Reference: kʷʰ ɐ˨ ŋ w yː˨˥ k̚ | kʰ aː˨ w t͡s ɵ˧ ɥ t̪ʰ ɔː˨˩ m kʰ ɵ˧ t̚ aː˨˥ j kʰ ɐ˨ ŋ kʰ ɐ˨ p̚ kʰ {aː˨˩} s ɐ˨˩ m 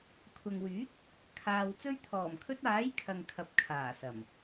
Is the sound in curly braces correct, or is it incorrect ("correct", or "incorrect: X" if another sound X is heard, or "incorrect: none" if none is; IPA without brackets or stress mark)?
correct